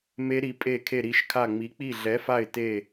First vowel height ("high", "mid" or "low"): mid